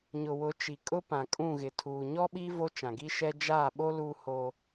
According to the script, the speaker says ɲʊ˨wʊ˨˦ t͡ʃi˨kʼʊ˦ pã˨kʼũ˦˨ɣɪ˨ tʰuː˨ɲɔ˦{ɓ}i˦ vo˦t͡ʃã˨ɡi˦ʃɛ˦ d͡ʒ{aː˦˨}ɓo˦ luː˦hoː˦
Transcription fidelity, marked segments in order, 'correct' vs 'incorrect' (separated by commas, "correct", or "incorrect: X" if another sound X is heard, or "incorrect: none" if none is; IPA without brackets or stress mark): correct, correct